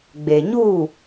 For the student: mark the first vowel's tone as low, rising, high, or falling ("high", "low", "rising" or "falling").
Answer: low